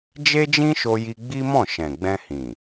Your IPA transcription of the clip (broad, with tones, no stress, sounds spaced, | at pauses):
d͡ʒ e˦ d͡ʒ ĩ˦ ʃ o˧ j i˧ ɡ͡b i˦ m ɔ̃˦˨ ʃ ɛ̃˨ ɡ͡b ɛ̃˧ h ĩ˨